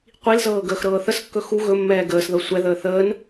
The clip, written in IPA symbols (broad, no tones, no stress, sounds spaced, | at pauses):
qʷ i l z ɤː ɡ əː x ɾ ɤː θ ə s kː ɵ x u ɣ ɵ mː ɛː ɡ əː s ð ɤ sʷ ɛ ð əː θ əː n